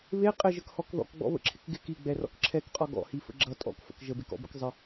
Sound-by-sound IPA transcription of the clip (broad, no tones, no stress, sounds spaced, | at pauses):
β e qʼ ɪ ʒ ə k h ɔ k ð ɔ̰ k ɡ͡b ɔ̰ β ə̰ ǁʰ ɪ k ɡ ɪ k i ɡ͡b ɛ r ɔ̰ k ǁʰ ɛ k qʼ ɔ ɡ ɔ̰ h i f ə̰ ɡ͡ǁ ʌ tʼ ɔ̰ k f ə̰ k ʒ ə b e k ɔ̰ b ə̰ k zˤ ə